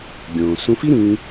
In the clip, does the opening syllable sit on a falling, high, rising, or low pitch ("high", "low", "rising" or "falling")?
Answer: low